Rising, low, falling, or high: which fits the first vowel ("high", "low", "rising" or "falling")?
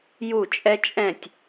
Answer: falling